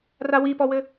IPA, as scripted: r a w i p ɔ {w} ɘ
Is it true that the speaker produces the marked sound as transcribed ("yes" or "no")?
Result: yes